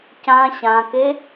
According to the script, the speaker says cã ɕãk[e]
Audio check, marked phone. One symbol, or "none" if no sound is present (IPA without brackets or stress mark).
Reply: e